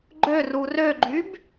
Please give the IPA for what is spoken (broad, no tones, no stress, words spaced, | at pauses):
ɡ͡ǃøru røɡ͡ǃyb